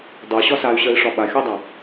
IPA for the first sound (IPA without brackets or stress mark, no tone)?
dˤ